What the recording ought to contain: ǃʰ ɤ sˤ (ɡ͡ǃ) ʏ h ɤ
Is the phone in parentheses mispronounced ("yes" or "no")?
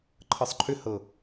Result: yes